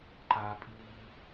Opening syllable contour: high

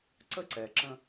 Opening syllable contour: high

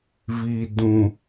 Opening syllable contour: low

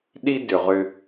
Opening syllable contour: high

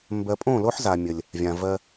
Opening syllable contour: low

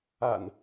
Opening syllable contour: low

